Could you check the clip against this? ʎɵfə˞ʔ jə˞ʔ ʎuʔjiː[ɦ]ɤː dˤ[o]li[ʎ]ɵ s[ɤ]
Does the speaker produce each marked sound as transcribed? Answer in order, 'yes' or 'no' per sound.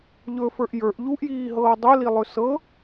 yes, no, no, yes

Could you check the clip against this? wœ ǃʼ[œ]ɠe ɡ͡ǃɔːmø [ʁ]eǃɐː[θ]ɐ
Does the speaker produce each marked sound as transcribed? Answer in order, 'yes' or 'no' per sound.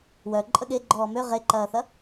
no, yes, yes

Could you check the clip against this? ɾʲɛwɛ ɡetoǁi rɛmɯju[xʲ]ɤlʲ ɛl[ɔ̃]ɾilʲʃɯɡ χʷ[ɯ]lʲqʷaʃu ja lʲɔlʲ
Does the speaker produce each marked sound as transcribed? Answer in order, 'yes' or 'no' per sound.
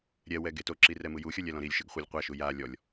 yes, yes, no

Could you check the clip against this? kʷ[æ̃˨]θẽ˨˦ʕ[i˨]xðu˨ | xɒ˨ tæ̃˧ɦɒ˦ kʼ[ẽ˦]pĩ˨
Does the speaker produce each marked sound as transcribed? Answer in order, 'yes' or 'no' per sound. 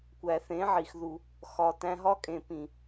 no, yes, no

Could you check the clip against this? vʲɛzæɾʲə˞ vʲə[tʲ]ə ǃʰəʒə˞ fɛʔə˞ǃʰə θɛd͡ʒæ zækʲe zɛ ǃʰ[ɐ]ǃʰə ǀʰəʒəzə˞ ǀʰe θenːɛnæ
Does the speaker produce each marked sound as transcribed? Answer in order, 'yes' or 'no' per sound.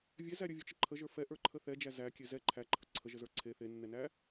no, no

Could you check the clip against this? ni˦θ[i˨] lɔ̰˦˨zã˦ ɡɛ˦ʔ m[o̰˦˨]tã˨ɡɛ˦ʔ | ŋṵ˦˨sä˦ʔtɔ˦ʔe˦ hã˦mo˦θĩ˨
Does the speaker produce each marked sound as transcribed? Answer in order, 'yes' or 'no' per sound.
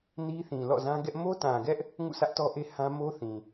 no, no

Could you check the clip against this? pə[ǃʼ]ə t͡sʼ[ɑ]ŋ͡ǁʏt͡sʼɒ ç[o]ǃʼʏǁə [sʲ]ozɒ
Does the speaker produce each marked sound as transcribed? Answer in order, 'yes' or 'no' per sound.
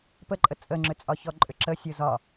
yes, no, no, yes

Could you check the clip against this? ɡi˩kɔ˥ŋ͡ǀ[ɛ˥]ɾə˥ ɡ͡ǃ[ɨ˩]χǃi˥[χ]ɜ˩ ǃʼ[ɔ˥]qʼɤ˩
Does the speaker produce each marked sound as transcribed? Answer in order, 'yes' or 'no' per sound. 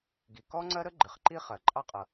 no, yes, yes, no

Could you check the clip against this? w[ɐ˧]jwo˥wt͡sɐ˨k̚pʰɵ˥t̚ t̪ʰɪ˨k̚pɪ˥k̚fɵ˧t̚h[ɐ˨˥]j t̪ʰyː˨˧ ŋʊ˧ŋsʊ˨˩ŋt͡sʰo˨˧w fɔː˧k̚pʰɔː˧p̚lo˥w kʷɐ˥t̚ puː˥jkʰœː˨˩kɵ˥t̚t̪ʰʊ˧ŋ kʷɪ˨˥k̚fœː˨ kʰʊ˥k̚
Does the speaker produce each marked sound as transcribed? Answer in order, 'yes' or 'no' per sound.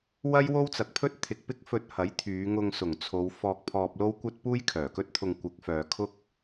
no, yes

